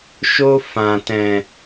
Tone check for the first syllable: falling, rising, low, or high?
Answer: high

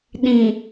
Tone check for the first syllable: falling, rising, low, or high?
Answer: low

